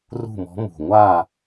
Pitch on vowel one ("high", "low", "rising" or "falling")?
falling